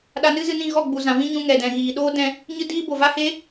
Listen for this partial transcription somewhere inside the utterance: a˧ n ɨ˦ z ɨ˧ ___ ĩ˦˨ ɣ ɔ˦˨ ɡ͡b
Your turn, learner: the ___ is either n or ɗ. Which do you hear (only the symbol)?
n